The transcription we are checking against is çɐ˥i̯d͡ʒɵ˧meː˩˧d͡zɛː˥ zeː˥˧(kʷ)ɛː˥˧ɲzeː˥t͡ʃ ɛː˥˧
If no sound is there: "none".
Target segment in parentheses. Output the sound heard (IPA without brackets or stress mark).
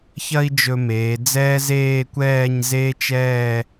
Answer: kʷ